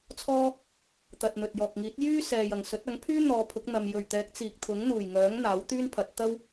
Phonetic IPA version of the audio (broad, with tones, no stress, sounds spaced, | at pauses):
t͡sʰ ɔː˥ | t̪ ɐ˨ t̚ n̪ ɵ˨ t̚ j ɔː˨ k̚ ŋ iː˨˥ t̚ j yː˥ s ɛː˨ j ɐ˨˩ ŋ s ɵ˨˥ t̚ ɐ˨˥ ŋ pʰ yː˥ n̪ ɔː˨˧ pʰ ʊ˨˥ k̚ n̪ ɐ˨ m j ɵ˨˩ ɥ t̪ ɛː˨˥ k̚ t͡s iː˨ k̚ t̪ʰ ʊ˨˥ ŋ n̪ uː˨˩ j ŋ œː˨˥ ŋ n̪ aː˨˥ w t̪ yː˥ n pʰ ɐ˨˥ t̚ t̪ ɐ˥ w